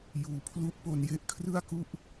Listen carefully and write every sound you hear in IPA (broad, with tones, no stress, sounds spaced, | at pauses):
j uː˧ pʰ l u˥˩ ʔ p o˧ n j e˦˥ ʔ kʰ r ɯ˥˩ a̯ k u˥˩ ʔ